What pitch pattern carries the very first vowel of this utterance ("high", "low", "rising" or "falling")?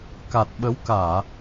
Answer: low